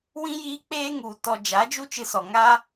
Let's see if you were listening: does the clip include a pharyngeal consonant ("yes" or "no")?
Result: no